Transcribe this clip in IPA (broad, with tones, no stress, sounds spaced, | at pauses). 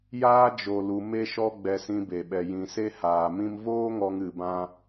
j aː˦ d͡ʒ o˨ l u˨ m e˦ ʃ ɔ˦ ɡ͡b ɛ˧ s ĩ˧ b e˨ ɓ ɛ˨ j ĩ˨ s e˦ h aː˨ m ĩ˦ m v oː˦ ŋ ɔ˧ ŋ ɨ˧ b ã˦